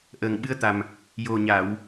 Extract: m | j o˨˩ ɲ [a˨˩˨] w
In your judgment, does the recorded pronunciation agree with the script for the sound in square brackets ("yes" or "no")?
yes